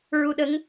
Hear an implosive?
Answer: yes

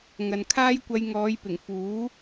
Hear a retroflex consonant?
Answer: no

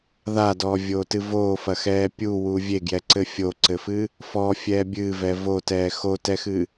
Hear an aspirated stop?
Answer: no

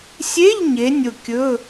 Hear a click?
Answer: no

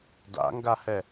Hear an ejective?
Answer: no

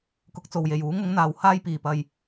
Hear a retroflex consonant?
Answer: no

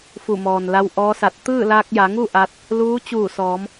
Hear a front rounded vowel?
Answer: no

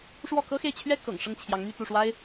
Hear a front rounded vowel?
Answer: yes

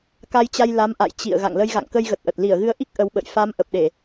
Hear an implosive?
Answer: yes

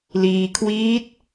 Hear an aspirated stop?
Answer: yes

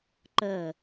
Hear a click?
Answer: yes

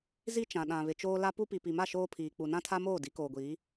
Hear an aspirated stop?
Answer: yes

